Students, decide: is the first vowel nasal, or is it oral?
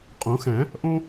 nasal